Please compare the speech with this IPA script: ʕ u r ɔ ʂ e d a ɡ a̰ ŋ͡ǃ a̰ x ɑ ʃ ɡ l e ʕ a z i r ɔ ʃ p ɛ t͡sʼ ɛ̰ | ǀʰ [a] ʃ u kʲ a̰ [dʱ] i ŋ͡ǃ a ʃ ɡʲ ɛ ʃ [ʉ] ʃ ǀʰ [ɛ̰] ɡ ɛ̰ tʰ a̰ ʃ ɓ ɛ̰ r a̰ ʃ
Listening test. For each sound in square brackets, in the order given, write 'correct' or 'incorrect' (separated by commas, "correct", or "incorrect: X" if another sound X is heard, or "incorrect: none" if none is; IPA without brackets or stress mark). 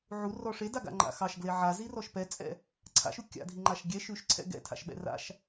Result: incorrect: a̰, correct, correct, correct